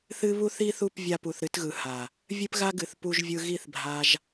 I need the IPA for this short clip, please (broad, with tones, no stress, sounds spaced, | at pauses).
θ ɨ˦ β u˧ θ i˦ θ u˦˨ p vʲ a˧ p u˨ θ ɾ ɨ˧ t ɣ ɯ˨ h a˨ | vʲ ɨ˦ p ɣ a˦ ɡ ɨ˨ θ p u˧ ʒ vʲ ɯ˧ ɣ i˦˨ θ bʱ a˧ ʒ